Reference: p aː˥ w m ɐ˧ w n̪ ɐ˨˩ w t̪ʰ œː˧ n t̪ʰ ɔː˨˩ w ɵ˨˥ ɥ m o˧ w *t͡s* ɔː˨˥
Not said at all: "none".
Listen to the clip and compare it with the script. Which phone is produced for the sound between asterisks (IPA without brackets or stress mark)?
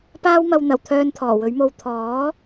t̪ʰ